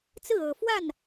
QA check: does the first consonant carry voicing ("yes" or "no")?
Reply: no